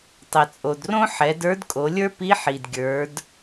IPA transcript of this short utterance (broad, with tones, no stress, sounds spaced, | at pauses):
tˤ ɛ˩ t͡sʼ o˩ d r õ˥ ħ ɛ˩˧ d ə˞˧˥ d kʼ o˩˧ lʲ ə˞˥ p i˧˥ ħ i˩ d ɡʲ ə˞˩˧ d